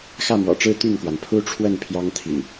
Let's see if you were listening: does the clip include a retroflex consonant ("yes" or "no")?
yes